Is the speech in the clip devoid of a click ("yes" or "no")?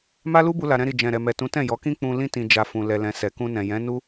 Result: yes